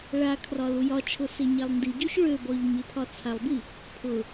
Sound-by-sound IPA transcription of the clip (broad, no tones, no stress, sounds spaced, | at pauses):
ɭ a kʰ r ɒ l u j ɒ t͡ʃʰ ʊ s e ɲ a lˠ n d i ɟ ø ç ɭ ø b ɔ ʎ ɲ e pʰ ɒ t͡sʰ a lˠ b i | pʰ ʊ